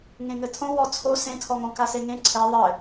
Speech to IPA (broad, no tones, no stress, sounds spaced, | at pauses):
ŋ ẽ ŋ ɘ tʰ õ w ɔ t͡sʰ o s ẽ tʰ ɔ ŋ õ k a s e ŋ ẽ ǀʰ ɛ ðˤ ɘ